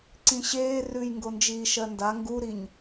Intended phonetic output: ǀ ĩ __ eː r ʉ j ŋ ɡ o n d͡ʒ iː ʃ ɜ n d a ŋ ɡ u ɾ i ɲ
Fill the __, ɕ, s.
ɕ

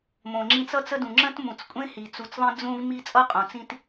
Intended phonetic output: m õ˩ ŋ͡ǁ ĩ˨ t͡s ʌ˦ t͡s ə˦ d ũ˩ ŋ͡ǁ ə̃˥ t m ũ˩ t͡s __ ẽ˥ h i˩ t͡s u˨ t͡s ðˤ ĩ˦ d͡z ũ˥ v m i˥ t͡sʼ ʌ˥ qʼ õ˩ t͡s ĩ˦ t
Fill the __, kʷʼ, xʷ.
kʷʼ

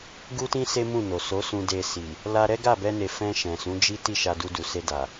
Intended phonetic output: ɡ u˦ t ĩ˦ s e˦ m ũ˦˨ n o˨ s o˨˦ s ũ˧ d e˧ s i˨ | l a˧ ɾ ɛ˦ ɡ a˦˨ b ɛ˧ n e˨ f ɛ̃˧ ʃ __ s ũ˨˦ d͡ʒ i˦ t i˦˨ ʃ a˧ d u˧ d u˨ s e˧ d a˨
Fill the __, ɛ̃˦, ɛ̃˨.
ɛ̃˨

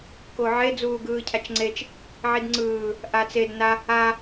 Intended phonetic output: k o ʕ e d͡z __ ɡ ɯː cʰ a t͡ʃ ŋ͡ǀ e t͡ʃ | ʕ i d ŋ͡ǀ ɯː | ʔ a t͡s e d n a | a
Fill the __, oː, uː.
uː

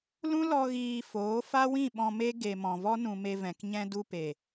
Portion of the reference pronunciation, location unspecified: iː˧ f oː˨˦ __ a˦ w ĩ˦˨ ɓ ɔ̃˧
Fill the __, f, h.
f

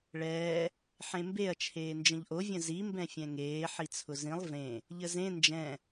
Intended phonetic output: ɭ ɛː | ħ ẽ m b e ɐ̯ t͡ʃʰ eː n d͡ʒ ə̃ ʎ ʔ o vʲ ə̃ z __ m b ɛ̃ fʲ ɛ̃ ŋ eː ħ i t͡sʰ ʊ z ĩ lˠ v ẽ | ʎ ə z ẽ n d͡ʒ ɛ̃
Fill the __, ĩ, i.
i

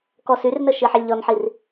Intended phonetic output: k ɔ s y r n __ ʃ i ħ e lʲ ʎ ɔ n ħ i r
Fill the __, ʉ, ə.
ə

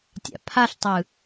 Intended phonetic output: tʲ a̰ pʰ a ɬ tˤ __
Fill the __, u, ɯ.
ɯ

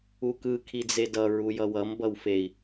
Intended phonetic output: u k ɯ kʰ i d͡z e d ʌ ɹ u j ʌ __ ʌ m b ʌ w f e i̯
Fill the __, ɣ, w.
w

